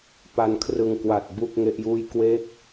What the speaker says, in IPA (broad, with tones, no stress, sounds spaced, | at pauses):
p a˧ n kʰ r ɯ˧ ŋ k w a˨˩ t̚ b u˥˩ k̚ ŋ e˥˩ ʔ j uː˥˩ j k w e˥˩ k̚